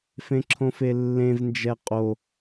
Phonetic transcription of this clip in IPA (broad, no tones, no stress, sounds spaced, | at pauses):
f ẽ ǁʰ õ f e lː ẽ v n d͡ʒ ɛ qʼ o